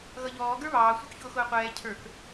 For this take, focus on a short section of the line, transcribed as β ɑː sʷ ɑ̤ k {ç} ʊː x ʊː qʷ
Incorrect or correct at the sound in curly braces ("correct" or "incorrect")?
correct